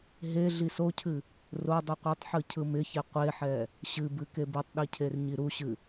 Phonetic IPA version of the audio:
ɦe ɮisocʰɨ | rodˤɨ qʷɯtˤħɯ cʰɯmɪçe qʷeħɛ | ɕɨbɨ kebɨtˤɗi cʰerɲiɾuɕɨ

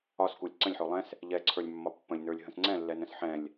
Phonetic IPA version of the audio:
ɒs kulʲǀə̃lʲħo lˠɛ̃s | ʎɛǀʰə˞lʲmːɒ pːə̃lʲnə˞lʲ ɦə̃sŋ͡ǀɛ̃lːɛnə̃s ħɛ̃lʲ

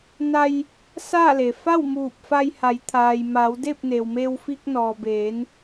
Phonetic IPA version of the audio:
na˧j | saː˥˨le˩ fa˥˨wmuː˧˩p̚fa˧j ha˩˧jt̪ʰaː˩jmaː˩˧w de˥˨p̚ne˩wme˧w fi˧k̚nɔː˩beː˩˧n

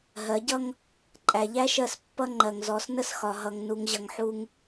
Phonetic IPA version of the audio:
ɦɜ˨˦ɟʌ˦ŋ | ǃʼæ˨ʎæ˦ʃɜ˦˨s pːʌ˦ ŋ͡ǃɜ˨ŋzɔ˨˦snə˦s xɒ˨ɦʌ˨ŋ nu˨ŋʑʌ˨ŋħu˦ŋ

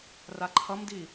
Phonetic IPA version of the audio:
raǃʰʌmdi

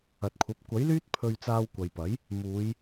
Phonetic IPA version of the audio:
ɐ˨t̚kʷʰɐ˨˥p̚ kʷɐ˨˥jlyː˥t̚ pʰɵ˧ɥt͡saː˧wkʷɐ˨jpɐ˨˥j | muː˨˧j

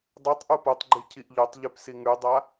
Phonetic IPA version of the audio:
dˤʉtˤ ʔupotˤɡ͡ǃi cʰiʔʎotˤʎʉp siŋʉdˤa

